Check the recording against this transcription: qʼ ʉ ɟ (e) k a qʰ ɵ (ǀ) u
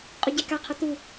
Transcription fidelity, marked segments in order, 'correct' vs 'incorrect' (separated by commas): correct, incorrect